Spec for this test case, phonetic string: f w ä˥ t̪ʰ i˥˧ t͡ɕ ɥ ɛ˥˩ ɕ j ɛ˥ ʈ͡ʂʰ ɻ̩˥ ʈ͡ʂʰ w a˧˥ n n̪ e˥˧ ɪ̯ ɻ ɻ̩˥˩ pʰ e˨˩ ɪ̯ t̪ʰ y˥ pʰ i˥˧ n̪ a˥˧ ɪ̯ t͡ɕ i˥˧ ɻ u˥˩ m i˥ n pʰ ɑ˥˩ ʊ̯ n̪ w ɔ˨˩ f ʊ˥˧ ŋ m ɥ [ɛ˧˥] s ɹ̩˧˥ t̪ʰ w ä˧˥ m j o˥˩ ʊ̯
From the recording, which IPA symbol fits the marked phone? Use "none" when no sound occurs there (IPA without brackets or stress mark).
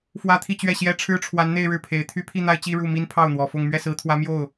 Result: ɛ˥˩